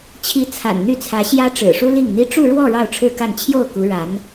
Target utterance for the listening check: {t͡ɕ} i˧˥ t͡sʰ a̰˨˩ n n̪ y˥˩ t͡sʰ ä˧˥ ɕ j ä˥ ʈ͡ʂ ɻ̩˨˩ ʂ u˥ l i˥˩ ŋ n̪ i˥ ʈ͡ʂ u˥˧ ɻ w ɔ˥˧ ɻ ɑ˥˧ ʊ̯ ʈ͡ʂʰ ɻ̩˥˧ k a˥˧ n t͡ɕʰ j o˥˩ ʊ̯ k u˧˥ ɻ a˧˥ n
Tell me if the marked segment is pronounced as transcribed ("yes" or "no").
no